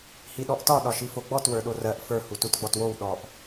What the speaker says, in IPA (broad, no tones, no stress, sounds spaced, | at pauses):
h i ɗ ɔ ʔ t ɒ ɗ ɒ ʃ i f o ɡ͡b ɔ t w ə˞ ɗ o r ɜ ʔ f ə˞ h u t u t ɡ͡b ɔ t w o w ɗ ɔ ʔ